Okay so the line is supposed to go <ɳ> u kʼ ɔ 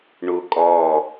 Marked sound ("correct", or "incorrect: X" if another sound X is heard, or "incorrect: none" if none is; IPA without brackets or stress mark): correct